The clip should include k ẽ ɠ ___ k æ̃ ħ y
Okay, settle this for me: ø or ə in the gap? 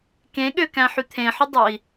ø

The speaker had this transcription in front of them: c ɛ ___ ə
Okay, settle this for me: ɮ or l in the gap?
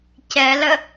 l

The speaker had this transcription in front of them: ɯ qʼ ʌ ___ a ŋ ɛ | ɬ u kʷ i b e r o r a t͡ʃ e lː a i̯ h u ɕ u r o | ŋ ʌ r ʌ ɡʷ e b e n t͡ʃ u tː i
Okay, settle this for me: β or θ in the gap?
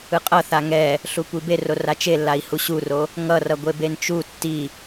θ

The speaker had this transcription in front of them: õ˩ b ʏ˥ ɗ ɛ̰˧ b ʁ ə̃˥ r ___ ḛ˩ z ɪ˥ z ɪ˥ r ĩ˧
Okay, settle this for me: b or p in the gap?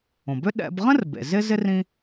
b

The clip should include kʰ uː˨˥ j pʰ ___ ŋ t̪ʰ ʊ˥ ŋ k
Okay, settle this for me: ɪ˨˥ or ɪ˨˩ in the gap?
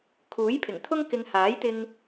ɪ˨˩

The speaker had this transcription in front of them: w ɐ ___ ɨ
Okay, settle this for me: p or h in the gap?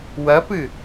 p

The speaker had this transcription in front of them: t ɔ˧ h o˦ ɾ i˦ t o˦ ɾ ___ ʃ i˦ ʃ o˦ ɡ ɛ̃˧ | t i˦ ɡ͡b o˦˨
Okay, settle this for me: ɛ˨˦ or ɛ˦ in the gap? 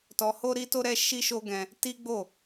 ɛ˦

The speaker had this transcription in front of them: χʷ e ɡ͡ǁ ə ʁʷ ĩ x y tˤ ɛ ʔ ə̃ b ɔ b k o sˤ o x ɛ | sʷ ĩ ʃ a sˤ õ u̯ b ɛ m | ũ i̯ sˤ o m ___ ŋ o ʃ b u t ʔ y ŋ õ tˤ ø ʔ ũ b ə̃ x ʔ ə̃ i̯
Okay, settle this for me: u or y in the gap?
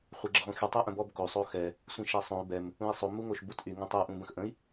u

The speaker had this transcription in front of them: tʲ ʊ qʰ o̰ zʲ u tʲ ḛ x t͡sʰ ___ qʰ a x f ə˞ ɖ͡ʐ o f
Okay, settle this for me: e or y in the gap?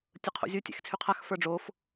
y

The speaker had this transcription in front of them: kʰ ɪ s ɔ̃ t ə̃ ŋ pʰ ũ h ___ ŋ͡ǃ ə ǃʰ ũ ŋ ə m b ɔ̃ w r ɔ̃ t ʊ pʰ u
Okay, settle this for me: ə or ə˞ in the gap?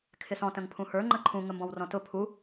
ə˞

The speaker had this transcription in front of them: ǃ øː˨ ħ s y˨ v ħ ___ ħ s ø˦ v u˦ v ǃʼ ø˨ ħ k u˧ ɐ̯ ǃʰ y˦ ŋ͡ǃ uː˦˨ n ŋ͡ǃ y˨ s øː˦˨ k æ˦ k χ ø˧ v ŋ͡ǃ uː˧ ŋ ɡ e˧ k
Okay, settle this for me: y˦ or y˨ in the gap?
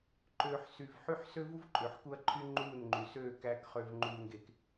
y˦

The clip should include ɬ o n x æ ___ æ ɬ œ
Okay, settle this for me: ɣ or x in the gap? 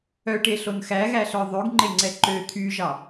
ɣ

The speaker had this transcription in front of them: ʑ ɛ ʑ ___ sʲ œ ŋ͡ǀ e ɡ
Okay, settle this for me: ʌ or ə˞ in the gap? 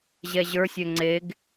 ə˞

